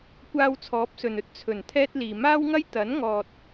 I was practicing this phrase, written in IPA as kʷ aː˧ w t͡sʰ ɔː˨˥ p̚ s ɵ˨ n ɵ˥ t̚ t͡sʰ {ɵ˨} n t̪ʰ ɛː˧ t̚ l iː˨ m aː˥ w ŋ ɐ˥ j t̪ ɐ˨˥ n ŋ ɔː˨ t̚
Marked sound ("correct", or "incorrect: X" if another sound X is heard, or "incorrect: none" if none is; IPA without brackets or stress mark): incorrect: ɵ˨˩